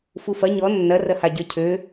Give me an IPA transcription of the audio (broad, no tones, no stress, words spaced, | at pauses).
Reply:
fufɐ ɲɔ nːɐ rɐhaɟə˞cʰø